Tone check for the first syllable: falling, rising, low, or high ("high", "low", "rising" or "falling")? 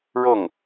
falling